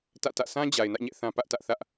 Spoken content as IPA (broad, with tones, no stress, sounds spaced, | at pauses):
t ä̰˦˨ t ä̰˦˨ s ã˦ d͡ʑ a˨ ɪ̯ n ä̰˦˨ ɲ ɛ̰˦˨ θ ã˦ p ä˦ ʔ t ä˦ ʔ θ ä˦ ʔ